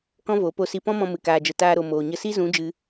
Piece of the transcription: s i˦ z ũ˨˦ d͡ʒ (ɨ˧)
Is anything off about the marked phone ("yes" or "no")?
no